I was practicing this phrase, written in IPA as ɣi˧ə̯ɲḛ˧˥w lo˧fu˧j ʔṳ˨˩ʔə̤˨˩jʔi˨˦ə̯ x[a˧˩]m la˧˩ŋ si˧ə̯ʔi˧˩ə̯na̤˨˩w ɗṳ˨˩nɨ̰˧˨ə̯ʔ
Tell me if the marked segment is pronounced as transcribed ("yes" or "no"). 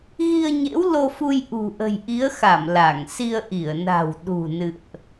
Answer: yes